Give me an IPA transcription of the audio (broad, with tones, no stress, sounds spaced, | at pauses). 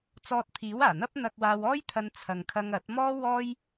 t͡s ɔː˧ t̚ t̪ʰ iː˨˥ w aː˨˩ n̪ ɐ˥ p̚ n̪ ɐ˧ k̚ w aː˧ w ɔː˥ j t̪ʰ ɐ˧ n t͡sʰ ɐ˨ ŋ kʰ ɐ˧ ŋ ɐ˨˥ t̚ m ɔː˥ w ɔː˥ j